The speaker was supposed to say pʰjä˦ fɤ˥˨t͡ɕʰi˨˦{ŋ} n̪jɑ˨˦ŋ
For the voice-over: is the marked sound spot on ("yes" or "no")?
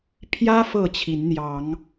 no